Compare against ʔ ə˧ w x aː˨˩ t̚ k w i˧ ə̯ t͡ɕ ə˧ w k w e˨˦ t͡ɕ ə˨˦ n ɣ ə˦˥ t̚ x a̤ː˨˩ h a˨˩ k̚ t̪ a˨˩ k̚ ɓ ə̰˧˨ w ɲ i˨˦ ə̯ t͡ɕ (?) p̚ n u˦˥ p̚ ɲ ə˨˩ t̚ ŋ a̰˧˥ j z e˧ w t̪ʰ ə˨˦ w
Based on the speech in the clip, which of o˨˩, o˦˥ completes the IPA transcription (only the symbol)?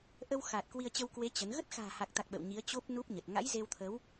o˦˥